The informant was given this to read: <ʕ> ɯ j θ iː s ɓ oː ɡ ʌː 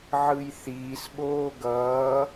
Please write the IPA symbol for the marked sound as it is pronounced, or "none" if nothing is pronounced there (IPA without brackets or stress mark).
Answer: ʕ